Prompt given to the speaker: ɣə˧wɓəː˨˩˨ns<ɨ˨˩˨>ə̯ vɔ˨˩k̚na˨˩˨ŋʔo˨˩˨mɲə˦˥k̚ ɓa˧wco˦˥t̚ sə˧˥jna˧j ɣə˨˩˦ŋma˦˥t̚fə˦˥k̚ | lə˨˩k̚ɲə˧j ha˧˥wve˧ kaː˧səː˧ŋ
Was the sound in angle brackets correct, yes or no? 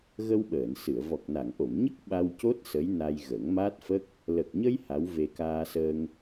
yes